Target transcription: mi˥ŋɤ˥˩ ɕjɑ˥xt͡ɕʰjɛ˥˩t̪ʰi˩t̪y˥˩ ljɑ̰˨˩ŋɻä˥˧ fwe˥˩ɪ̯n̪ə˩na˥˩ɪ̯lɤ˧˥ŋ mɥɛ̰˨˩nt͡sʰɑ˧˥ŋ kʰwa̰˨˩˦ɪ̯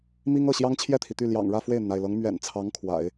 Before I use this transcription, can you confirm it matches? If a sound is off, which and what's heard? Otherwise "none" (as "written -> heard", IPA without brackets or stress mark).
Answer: x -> ŋ